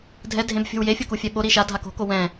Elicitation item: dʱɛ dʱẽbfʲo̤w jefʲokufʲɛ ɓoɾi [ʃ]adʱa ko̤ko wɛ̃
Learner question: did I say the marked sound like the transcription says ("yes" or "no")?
yes